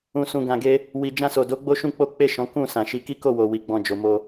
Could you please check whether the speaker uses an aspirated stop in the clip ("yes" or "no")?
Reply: no